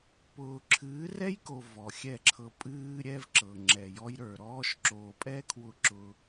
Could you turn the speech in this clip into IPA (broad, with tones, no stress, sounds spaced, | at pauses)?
p ʊː˨ ǁʰ ɨː˨˦ r ɛ˦ j k o˨ v ɔ˨ xʲ ɛ˦˨ ǁʰ ɤ˧ pʼ ɨː˦ ɾʲ ɛ˦ v ǁ ɤ˨ ŋ͡ǁ ɛ˨ j ɔ˧ j ɾ ə˞˨ ɾ ɔː˦ ʃ ǁ oː˨ pʼ ɛː˦ kʰ w ʊ˧ ǁ ʊ˧